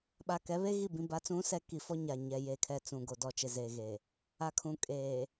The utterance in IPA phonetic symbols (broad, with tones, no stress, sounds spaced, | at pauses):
ɓ a˨ k ɛ˨˦ β e˦ ɣ i˦˨ b ĩ˨ b a˨˦ t͡s ũ˨˦ s ɛ˨ k i˨ f ɔ˦ ɲ a˨ ɲ ɛ˨ j e˨ kʰ ɛ˨ t͡s ũ˨ ɡ o˨ d ɔ˨ t͡ʃ ɪ˨ z eː˨ ɣ eː˨ | a˨ kʰ ũ˨ kʼ eː˨